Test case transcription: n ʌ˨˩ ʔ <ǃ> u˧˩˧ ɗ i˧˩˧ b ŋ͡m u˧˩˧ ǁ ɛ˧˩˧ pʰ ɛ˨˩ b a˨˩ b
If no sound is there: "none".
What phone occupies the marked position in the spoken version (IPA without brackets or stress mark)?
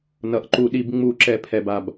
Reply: ǃ